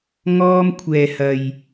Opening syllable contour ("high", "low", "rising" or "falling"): high